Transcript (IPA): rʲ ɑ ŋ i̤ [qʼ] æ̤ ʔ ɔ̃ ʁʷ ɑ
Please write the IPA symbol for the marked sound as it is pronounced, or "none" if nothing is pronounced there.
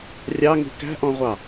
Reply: k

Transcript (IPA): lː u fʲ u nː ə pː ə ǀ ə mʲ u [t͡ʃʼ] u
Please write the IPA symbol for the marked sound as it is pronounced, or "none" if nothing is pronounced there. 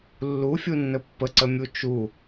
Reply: t͡ʃ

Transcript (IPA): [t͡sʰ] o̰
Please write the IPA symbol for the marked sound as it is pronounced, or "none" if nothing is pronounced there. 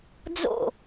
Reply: d͡z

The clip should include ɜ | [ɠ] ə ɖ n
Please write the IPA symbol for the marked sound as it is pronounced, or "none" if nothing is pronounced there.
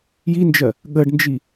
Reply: ɠ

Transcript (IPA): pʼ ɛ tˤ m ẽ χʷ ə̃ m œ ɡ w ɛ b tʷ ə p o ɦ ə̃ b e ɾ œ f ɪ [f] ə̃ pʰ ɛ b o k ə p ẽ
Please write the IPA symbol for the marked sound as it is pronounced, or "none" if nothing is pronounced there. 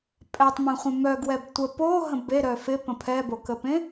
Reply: p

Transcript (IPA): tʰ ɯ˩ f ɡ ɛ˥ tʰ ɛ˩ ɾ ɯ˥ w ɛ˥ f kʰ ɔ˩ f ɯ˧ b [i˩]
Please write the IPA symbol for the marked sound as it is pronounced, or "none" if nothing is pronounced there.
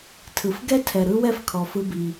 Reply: i˩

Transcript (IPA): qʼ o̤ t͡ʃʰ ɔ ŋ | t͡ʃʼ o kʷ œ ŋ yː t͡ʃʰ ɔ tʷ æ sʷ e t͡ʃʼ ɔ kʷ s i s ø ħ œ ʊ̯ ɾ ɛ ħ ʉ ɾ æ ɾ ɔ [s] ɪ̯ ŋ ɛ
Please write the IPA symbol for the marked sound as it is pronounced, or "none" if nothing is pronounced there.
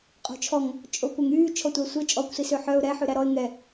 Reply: none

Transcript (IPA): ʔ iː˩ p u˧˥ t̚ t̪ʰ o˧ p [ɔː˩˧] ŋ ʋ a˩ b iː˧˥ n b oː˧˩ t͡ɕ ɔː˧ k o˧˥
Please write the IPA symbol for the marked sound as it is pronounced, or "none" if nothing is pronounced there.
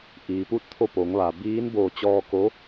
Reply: oː˩˧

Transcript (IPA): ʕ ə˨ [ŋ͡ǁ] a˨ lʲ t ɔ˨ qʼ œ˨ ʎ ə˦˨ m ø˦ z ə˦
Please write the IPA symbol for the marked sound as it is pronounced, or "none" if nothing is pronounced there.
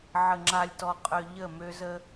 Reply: ŋ͡ǁ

